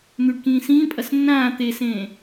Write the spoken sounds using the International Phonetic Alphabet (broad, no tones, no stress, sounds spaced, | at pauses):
n̪ ʉ ɖ k ĩː s ĩː pʼ ɐ s nː ãː t̪ e s ẽː